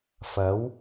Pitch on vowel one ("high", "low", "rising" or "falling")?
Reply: rising